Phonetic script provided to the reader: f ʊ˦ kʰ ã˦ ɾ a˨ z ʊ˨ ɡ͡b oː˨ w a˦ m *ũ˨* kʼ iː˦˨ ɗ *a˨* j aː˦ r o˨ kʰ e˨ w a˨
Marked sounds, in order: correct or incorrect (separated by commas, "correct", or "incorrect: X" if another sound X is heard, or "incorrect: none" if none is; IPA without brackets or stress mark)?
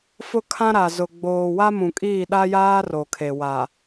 correct, incorrect: a˦